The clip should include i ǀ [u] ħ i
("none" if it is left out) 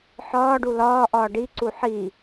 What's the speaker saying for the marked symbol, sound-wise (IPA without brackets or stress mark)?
u